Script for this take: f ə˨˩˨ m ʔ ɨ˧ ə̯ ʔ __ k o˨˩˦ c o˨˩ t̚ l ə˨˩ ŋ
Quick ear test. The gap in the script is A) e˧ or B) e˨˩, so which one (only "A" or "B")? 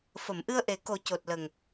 B